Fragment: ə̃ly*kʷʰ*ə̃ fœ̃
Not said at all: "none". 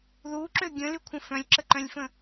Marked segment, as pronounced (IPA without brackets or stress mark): kʷʰ